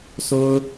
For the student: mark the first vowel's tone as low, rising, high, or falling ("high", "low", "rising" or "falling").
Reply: high